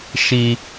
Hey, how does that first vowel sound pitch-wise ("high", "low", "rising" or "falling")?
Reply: low